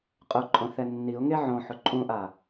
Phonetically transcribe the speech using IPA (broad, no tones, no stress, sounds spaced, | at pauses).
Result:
qʼ ʊ ǃʼ õ θ ɛ nː i ʊ̯ ŋ e ʕ õ ħ ʊ ǃʼ ũ ʔ a